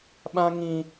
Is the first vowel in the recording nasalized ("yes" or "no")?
yes